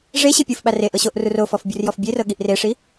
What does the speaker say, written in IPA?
ʐ e ɕ i pʲ u f ɓ a r e ʔ ɤ ɕ o ʔ r u r o f ɔ f bʲ u r j ɔ f bʲ e r ɤ ɠ i ʔ r e ʂ i

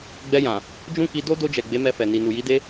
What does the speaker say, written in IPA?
ɡ͡b ɛ˧ j ã˨ | d͡ʒ ũ˦ k i˧ d o˦ d o˧ d͡ʒ ɛ˨ ɡ͡b e˨˦ m ɛ˧ f ɛ˨ n i˨ n u˨ j i˨˦ d e˧

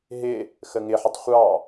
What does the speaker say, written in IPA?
ɦ ɪ | x ə ŋ ɪ ħ ɪ tˤ χʷ ɑ

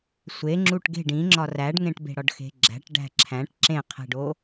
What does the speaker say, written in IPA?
sʷ e ŋ͡ǁ u ʈ ɡ e̤ ɖ ĩ ŋ͡ǁ ɒ r æ ɖ ŋ ẽ ʈ b e̤ ɽ ɒ ɖ x e̤ ɡ͡ǁ æ̤ ʈ ɖ æ̤ ǁʰ æ̃ ʈ ǁ ẽ qʰ e̤ ɖ o

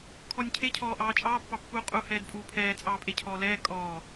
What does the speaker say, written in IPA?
kʰ ɔ nʲ cʰ e cʰ ɔː ʔ ɑː t͡ʃʼ ɑː pː ɑ pː uː qʼ u h ɛː d pʼ uː pʰ ɛː t͡sʼ ɑː pʼ e cʰ ɔː l ɛː kʼ ɔː

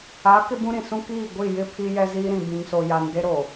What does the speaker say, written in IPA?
a˨˦ k ɪ˦ b ũ˦ ɾ ĩ˨ s ũ˦ k iː˦˨ ɡʷ i˦˨ j ɪ˦ pʰ i˦ j ɛ˦ z iː˦ ɾ ĩ˨ b ĩ˨ ŋ s o˨ j a˨ n d e˦ ɾ o˨

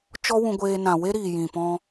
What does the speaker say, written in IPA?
t͡ʃ ɔ˦ w ũ˧ ɡʷ eː˧ n ã˨ w e˦ ɾ iː˨ j ĩ˨ p ɔ̃˧

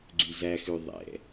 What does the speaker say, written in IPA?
ɡ͡ǀ y z æ x ʉ ðˤ ɛ̰

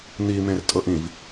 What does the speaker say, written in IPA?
n̪ i m ẽ r tʼ ɤ ʔ ĩ v

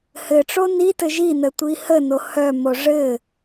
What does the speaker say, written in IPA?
h ɘ ʈ͡ʂ o n i t ɘ ʒ i n ə tʷ i h ə n o h œ m o ʐ ɘ

